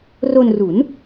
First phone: r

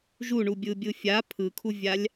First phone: ʒ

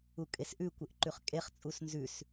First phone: u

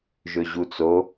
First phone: ʒ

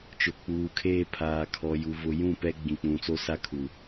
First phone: t͡ʃ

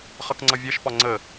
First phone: χ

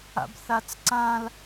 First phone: a̰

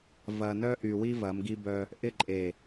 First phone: v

